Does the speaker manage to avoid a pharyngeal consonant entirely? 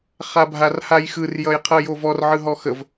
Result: no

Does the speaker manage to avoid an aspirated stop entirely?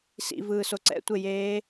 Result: yes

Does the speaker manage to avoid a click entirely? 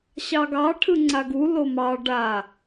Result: no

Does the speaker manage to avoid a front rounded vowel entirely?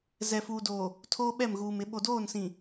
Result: yes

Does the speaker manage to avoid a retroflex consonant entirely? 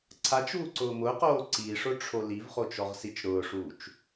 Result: no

